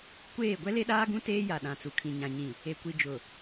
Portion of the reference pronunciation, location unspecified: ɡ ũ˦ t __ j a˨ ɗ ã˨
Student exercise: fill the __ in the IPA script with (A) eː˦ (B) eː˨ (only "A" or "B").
A